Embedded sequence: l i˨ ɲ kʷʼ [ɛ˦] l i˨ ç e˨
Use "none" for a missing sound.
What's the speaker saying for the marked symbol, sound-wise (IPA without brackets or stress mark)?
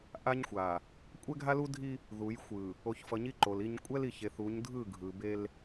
ɛ˦